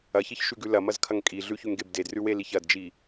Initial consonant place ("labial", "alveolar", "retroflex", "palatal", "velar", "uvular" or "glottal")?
palatal